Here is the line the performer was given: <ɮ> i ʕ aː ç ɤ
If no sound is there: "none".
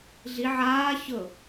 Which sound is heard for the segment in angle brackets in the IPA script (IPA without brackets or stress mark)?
ɮ